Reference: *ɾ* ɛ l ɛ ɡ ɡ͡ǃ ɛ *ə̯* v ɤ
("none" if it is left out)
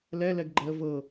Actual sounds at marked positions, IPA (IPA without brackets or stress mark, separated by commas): l, ə̯